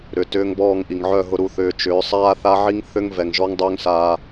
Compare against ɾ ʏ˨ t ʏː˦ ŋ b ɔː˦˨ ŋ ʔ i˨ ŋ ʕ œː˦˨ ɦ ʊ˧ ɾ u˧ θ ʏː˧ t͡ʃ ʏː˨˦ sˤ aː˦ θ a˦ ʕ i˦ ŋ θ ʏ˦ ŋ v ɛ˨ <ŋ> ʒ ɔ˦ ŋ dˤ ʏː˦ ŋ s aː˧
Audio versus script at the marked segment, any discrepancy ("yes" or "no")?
no